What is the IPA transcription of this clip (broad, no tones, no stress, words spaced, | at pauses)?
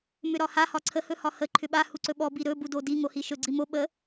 mʏɾɒha hɒǀʰə hɵhɒhə ǃʰʏɓa huǀɵɓɔ biɾɵ budodi ŋohiʃɵ ɡ͡ǀimo ɓə